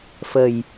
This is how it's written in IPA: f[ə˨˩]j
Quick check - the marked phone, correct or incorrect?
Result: correct